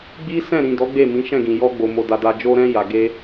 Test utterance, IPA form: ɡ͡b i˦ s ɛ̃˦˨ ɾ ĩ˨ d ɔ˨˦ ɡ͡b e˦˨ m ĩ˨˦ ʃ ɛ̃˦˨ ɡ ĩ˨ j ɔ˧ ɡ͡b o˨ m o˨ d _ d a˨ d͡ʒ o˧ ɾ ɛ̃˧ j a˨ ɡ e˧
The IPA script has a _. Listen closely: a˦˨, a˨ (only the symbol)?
a˨